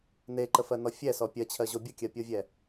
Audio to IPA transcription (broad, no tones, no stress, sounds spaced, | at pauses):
n e ǃ ə f ɜ n ɔ fʲ ɛ s ɔ pʲ ɜ t͡ɕʰ ɜ ʑ o bʲ ə kʲ ɜ pʲ o vʲ ɛ